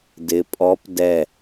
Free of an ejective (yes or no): no